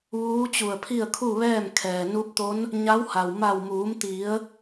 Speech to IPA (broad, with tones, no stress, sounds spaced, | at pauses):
ʋ uː˧˥ t͡ɕ u˧˩ ə̯ pʰ i˥˨ ə̯ kʰ u˥˨ ʋ ɛː˥˨ m kʰ ɛː˩ n u˧˥ p̚ t̪ o˧˥ n | ɲ a˧˥ w h a˩ w m a˧˩ w m uː˩˧ m t̪ i˩˧ ə̯